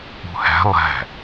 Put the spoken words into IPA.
ṳ h æ̤ lˠ æ̤

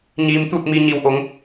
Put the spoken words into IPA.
ɲ iː˩ m t̪ u˧˩ t̚ m i˩ ɲ i˩ w ʔ o˩˧ ŋ

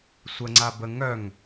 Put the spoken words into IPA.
sʷ ə ŋ͡ǀ a b ə ŋ œ ŋ

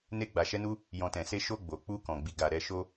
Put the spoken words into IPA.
n e˧ ɡ͡b a˨ ʃ ɛ˧ n u˧ | j ɔ̃˨ t ɛ̃˨ s e˧ ʃ o˧ ɡ͡b o˨ k͡p u˧ k ɔ̃˨ ɡ͡b i˨ ɡ a˨ ɾ ɛ˧ ʃ o˧

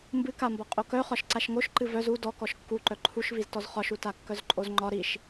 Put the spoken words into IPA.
m b ɨ k a m b ɒ qʼ o k œ χ ɒ ʃ ǀ a ʃ ŋ o ʃ ǃ ɨ v œ z u d ɔ k ɔ ʃ kː u ǃ œ ǃʰ u ʃ v i z t ɔ z χ ɒ ʃ u t a kː œ z ǃʼ o z ŋ͡ǃ ɒ ɾ i ʃ

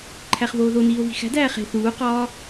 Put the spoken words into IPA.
ǃʰ æ χ v oː ð o n iː o̯ v i̤ x æ̤ d æː χ e̤ θ uː q ɒː

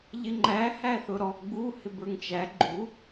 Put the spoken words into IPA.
ʎ ɪ ŋ͡ǃ æ h æ θ ʊ ɾ ɔ ɡ͡b u h ɪ b ə˞ ŋ t͡ʃ æ ɡ͡ǃ u

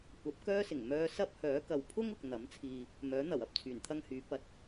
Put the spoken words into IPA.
kʷ ɐ˨˥ p̚ k œː˥ s ɪ˨˩ ŋ m œː˧ s ɐ˥ p̚ h œː˨˥ k ɐ˨ w pʰ ʊ˥ ŋ ʊ˨ k̚ n̪ ɐ˨˥ m t͡sʰ iː˧ | m œː˨˥ n̪ ɐ˨˩ w ɐ˨ p̚ t͡sʰ yː˨˩ n t̪ʰ ɐ˥ ŋ h yː˨˥ p ɐ˧ t̚

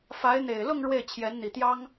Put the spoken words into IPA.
f a˧˥ ɪ̯ n̪ e˨˩ ɪ̯ l ʊ˥˧ ŋ ɻ w e˥˩ ɪ̯ t͡ɕʰ j ɛ˧˥ n n̪ i˨˩ t̪ j ɑ˥ ŋ

